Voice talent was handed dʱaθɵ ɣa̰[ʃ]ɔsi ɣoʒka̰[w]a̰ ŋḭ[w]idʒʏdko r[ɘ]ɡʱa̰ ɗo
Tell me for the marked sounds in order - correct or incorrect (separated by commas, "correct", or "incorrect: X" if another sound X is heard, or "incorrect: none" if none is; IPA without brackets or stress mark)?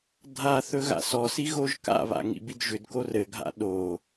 incorrect: s, incorrect: β, incorrect: b, correct